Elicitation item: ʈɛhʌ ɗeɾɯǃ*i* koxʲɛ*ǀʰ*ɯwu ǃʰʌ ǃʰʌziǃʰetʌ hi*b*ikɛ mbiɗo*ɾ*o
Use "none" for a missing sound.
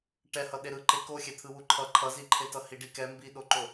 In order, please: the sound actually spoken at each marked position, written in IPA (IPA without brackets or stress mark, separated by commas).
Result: e, t̪ʰ, ɖ, ǃ